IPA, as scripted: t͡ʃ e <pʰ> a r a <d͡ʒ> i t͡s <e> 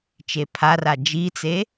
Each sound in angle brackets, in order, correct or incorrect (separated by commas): correct, correct, correct